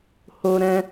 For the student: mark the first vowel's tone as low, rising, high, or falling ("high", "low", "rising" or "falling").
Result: high